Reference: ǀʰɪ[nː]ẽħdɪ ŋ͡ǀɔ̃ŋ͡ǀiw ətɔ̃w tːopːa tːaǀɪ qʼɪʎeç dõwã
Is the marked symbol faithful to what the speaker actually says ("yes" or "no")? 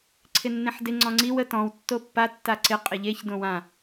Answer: yes